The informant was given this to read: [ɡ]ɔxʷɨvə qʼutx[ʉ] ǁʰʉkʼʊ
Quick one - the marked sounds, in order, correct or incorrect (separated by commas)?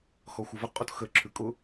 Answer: incorrect, incorrect